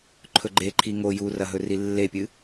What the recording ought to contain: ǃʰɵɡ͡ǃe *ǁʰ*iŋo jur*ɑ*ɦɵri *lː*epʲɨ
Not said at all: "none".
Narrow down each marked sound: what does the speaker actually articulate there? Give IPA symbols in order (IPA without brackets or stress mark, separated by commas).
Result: ǃʰ, ɐ, lː